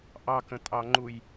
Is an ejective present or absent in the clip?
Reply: present